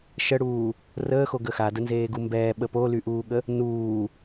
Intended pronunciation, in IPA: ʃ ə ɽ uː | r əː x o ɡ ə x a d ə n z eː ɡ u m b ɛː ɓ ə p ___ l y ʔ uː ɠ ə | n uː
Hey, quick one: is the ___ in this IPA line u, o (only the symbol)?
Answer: o